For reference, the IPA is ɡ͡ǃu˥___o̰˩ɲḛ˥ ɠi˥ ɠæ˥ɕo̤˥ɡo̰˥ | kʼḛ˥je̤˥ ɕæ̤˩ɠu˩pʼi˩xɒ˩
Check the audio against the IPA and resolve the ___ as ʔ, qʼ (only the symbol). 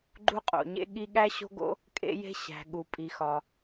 qʼ